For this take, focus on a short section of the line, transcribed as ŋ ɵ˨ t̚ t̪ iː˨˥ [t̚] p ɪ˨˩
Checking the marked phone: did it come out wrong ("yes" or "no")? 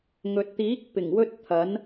yes